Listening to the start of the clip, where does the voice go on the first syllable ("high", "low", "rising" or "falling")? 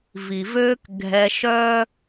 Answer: low